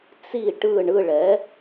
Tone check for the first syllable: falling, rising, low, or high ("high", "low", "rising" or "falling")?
falling